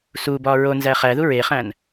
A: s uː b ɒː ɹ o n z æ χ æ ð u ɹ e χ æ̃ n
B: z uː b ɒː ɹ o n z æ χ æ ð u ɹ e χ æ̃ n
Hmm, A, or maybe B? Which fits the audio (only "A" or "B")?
A